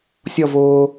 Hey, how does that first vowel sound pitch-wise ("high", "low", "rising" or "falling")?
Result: falling